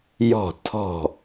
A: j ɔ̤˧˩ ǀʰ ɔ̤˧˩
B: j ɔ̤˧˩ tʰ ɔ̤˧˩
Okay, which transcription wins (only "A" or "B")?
B